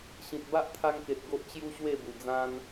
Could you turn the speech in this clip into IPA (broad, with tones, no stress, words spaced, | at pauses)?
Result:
ɕĩ˨t̚ ba˦ʔt̪ʰa˧ŋke˨t̚ ɡo˦ʔt͡ɕju˦ɕwe˥˧bu˨˩ d͡zã˧n